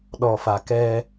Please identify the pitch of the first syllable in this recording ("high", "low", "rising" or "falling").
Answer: low